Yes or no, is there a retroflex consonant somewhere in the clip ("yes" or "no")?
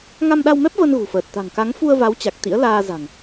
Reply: no